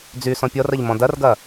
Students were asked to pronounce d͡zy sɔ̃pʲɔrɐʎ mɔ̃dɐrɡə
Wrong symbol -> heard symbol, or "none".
ə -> ɐ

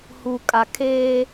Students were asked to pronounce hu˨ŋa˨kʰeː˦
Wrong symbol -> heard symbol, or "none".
ŋ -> kʼ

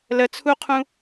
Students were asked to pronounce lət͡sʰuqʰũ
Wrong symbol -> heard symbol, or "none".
none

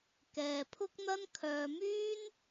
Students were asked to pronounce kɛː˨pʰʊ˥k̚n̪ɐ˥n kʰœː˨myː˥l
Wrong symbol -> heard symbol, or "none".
l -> n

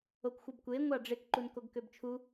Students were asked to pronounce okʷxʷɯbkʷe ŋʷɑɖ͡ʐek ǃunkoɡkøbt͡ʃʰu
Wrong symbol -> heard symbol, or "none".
none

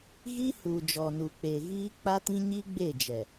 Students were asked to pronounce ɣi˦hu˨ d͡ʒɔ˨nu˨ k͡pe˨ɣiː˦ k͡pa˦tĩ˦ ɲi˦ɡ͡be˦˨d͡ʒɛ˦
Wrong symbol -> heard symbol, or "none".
ɛ˦ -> ɛ˨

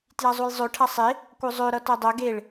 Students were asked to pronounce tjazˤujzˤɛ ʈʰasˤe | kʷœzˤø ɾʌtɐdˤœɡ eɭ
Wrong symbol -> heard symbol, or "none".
ɛ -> ø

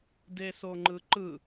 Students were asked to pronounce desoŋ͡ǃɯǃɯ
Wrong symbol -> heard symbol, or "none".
none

